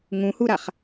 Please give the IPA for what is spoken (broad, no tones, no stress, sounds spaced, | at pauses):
ŋ ũ h u ɾ a χ